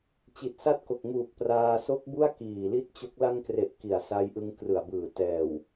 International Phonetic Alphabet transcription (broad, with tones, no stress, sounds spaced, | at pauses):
t͡ɕ i˨˩ t̚ s a˦˥ t̚ k o˨˩ k̚ ŋ uː˨˩ k̚ p r aː˧ s o˦˥ k̚ b u˥˩ a̯ k iː˨˩ l i˦˥ t̚ t͡ɕ o˦˥ k̚ l a˧ ŋ k r e˨˩ ʔ k i˨˩ a̯ s a˧ j ʔ ɯ˧ ŋ k r ɯ˨˩ a̯ b ɯː˨˩ t ɛː˨˩ w